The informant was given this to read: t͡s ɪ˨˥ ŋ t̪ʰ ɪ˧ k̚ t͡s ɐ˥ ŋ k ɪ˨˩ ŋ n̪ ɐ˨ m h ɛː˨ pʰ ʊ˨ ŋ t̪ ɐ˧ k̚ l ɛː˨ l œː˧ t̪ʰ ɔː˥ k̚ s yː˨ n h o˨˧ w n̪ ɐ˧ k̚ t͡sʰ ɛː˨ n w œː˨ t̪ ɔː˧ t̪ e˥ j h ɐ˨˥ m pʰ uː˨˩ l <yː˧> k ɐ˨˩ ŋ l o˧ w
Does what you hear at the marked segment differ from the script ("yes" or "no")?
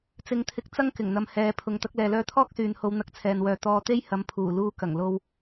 yes